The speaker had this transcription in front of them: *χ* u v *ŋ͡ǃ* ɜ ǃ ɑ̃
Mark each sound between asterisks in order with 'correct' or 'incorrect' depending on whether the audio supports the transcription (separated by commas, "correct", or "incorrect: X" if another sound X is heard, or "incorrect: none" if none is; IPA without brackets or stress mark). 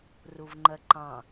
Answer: incorrect: r, correct